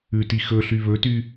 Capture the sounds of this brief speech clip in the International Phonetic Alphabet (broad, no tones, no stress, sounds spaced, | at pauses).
ʉ t i x ɵ ɬ y β ɵ t y